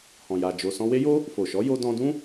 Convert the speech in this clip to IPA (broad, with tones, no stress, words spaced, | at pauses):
hɔ̃˨ja˨d͡ʒo˨ sɔ̃˧we˦jo˦ | fo˨ʃɔ˨˦ jo˧dɔ̃˧dũ˦